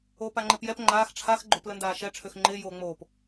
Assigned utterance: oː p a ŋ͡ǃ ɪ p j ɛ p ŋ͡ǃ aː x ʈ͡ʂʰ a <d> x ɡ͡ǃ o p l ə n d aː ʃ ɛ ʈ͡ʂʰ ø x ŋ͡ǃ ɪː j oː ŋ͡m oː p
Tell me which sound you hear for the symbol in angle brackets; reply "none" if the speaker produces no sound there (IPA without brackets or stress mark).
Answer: none